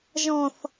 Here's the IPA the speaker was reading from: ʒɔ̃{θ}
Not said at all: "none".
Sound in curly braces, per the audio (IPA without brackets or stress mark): θ